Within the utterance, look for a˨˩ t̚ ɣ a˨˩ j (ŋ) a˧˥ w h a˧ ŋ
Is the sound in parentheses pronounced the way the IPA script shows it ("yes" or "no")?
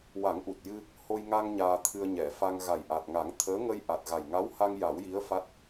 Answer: yes